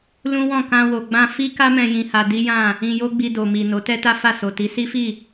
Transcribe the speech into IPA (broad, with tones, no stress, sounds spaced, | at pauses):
l ũ˦ w ɔ̃˦˨ k ã˧ w o˨ ɡ͡b ã˧ f i˦ k a˦ m ɛ̃˧ j ĩ˧ h a˧ d i˦ j ã˦˨ | ĩ˧ j o˦ ɡ͡b i˧ d o˨ m i˨ n o˨˦ t ɛ˦ t a˦ f a˦˨ s o˨ t i˨˦ s i˦ f i˦˨